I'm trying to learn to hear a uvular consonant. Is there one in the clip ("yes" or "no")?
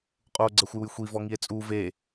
yes